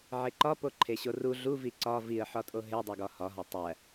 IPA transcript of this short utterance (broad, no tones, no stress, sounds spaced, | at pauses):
ʕ e ǃ ɒ p o ǃʰ e ɕ o r u ɮ u v i ǀ ɒ v i ə̯ ħ ɒ tʼ o ɦ e dˤ o ɡ ɒ h ɒ ɦ ɒ tˤ æ